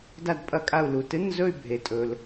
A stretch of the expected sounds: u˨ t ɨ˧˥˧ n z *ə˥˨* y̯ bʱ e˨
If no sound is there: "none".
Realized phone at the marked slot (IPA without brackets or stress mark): ɵ˥˨